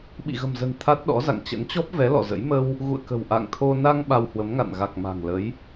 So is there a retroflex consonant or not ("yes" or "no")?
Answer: no